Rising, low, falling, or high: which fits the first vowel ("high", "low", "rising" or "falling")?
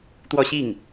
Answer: high